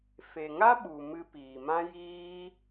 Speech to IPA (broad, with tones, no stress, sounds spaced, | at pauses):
f e˨ ŋ a˦ ɓ u˨ m ɨ˧ p iː˨ m ã˦ j iː˦